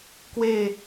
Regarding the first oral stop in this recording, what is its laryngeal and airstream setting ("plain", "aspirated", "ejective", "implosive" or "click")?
plain